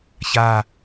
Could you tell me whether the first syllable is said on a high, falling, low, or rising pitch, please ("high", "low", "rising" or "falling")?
falling